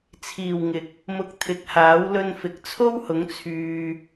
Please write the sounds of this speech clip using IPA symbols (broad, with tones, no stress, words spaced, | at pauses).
t͡sʰiː˨˩wŋɪ˨˥k̚ | mʊ˧k̚t̪ʰɪ˨˥k̚haː˨˥w lɵ˧nfɪ˨˥k̚t͡sʰo˥whʊ˨˥ŋ t͡sʰyː˨